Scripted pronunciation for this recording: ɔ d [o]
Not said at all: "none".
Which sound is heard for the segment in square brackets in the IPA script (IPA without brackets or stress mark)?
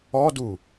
u